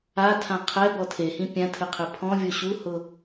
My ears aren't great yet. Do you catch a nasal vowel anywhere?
yes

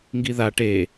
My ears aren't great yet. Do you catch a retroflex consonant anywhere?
yes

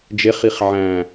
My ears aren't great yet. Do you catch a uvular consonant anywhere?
yes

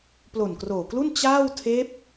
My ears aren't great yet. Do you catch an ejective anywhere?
no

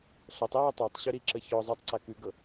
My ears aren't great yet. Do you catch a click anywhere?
yes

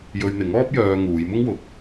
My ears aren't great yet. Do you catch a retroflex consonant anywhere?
no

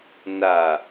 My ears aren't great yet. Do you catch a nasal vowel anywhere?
no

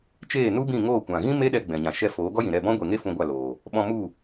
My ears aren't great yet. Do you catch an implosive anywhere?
yes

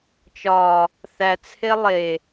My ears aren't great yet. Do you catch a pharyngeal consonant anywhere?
no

